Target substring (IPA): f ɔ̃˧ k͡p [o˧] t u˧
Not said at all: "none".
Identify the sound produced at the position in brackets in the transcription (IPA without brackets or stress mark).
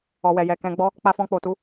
o˨